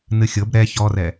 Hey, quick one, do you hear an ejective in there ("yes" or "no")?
no